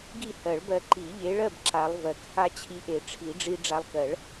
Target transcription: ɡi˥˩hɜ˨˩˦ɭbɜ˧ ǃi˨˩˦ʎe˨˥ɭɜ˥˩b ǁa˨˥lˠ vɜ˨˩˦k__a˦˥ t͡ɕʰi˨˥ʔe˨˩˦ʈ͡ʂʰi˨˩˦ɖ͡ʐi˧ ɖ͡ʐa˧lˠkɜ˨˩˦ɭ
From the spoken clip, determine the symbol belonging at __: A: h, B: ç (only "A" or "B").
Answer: A